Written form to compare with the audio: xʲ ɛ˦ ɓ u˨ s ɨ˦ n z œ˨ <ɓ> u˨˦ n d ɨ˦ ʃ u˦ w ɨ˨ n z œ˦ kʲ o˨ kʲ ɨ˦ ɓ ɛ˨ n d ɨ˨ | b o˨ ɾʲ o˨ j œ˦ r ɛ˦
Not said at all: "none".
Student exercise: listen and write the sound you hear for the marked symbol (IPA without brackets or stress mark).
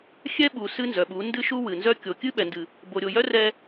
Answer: ɓ